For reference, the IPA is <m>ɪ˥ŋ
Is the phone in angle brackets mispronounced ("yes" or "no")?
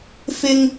yes